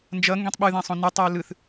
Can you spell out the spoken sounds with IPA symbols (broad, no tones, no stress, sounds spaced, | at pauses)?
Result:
n d͡ʒ ʌ ŋ ɡ ẽ tˤ ɓ ɯ ð ɛ̃ sˤ õ n ɯ tˤ ʌ ʊ̯ l ɯ θ